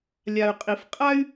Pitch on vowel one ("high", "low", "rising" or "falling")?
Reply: low